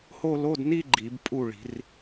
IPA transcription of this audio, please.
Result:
h o˥˧ l o˧˥˧ d n i˥˧ ɡ͡ǃ i˨˩˦ b pʼ u˥˩ ɭ i̤˨˩˦ r

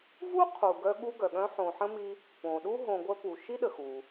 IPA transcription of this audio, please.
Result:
v u˥ qʰ u˨ ɡ œ˦ ɠ u˦ ɡ œ˩ ɠ œ̃˦ ħ õ˨ ħ ə̃˥ m i˦ | p õ˩ ɗ u˥ ɦ õ˨ ɡʷ œ˦ p u˩ ʃ i˥ ɗ ə˩ x u˩

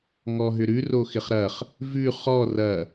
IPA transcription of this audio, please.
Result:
ŋ ɔ ɦ ʏ ɾ ʉ r o x ɪ χ ɾ ɐ χ | v ʉ χ ɔ r ɐ

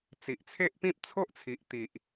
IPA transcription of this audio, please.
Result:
t͡s i˨ ʔ t͡sʰ e˦ ʔ p ĩ˦ p̚ t͡sʰ o˦ ʔ t͡sʰ i˨ ʔ t̪ i˨ ʔ

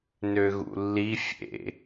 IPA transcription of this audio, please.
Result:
n ø ɣ ṵ lː i fʲ ḛ

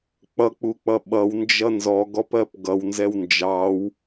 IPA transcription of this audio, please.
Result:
k͡p ʌ k͡p u k͡p ʌ ɓ ʌ w n d͡ʒ ʌ n z ɔ ɡ ɔ p ɜ p ɡ ʌ w n z ɛ w n d͡ʒ ɑ w

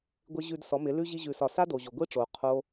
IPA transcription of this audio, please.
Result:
ɡʷ ɪ˦ ʑ ʉ˧ d s ɔ˨˦ m ɪ˨˦ l ʉ˦ ʑ i˦ ʑ ʉ˧ s ɒ˧ s a˦ d o˨ ʑ o˨ ɡʷ i˦ ʈ͡ʂ oː˨ qʰ o˦

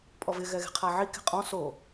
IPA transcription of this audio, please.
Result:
pʼ ɔ v ɪ ɣ ɛ ɣ e̤ qʰ a ʕ i k e̤ qʼ ɔ̃ s o

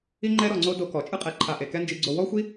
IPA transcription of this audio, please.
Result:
i˦ ŋ͡ǃ ɛ˦ ɾ ɔ˧ ŋ͡ǀ o˦ d o˧ k ɔ˨ t͡ʃʼ ɯ˦ qʼ ɛ˨ ǃʰ a˨ ʔ e˨ k ɛ˦ n d͡ʒ i˧ ɡ͡ǀ o˧ w ɔ˦ xʷ i˦

